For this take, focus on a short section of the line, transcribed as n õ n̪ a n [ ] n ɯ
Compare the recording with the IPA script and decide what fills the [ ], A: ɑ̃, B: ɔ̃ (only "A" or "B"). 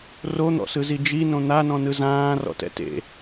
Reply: B